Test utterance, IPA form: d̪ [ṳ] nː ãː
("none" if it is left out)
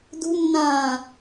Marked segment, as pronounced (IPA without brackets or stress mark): ṳ